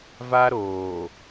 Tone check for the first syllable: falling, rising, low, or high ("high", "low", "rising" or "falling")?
high